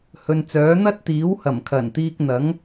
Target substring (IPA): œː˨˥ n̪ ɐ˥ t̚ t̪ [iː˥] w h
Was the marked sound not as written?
yes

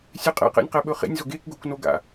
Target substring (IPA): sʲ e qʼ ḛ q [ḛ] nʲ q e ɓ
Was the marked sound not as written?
no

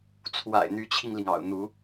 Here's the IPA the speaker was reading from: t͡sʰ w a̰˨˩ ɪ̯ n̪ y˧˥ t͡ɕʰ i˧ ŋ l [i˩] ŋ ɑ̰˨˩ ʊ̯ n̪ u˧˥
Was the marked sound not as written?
no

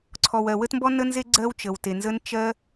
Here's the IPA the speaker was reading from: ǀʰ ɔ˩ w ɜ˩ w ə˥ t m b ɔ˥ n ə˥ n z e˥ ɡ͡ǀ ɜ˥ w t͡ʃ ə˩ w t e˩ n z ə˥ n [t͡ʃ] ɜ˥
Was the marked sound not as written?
no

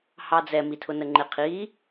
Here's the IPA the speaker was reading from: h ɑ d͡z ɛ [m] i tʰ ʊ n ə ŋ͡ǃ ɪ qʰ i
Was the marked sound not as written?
no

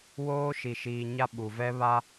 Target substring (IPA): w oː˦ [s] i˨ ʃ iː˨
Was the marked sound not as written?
yes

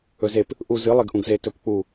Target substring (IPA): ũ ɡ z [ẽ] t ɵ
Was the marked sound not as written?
yes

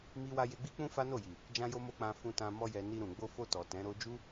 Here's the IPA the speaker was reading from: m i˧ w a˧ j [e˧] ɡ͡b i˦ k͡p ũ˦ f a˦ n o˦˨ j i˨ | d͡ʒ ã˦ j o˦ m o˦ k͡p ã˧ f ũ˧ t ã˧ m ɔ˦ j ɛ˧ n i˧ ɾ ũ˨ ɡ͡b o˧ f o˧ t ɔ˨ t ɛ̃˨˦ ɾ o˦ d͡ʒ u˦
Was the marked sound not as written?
no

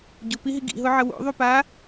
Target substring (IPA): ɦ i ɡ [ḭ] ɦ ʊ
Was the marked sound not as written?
no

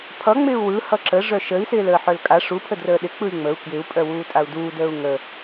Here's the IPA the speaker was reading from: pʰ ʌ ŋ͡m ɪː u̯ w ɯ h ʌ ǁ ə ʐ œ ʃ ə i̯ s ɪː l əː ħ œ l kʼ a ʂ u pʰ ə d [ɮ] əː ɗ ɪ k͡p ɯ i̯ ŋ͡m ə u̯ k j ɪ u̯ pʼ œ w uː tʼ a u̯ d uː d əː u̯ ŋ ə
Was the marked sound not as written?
yes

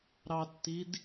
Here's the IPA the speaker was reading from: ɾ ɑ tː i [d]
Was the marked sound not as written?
no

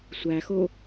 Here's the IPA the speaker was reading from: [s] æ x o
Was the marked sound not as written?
yes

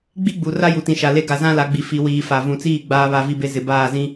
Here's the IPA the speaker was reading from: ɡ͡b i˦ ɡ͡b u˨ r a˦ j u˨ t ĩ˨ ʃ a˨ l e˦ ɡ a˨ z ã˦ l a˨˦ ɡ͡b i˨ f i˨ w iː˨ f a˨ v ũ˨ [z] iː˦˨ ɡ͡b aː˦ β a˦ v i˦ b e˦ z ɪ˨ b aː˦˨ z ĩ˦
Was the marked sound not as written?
yes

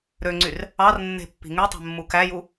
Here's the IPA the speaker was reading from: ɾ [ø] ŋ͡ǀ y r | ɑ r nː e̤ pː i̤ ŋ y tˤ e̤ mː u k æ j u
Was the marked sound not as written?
no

